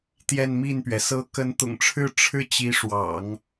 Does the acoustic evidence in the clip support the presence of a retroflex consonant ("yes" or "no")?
yes